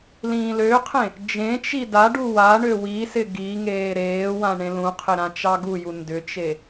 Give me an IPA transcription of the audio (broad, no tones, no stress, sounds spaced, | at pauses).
l ĩː l ø qʰ ẽ | d͡ʒ ẽ t͡ʃ i d a ɖ u w a ɳ ø w i s ɪ ɡ i ŋ eː ɾ eː w ã ɳ ẽ l ũ qʰ ɪ ɾ ã t͡ʃ ɑ ɡ u j u n d ʏ t͡ʃ e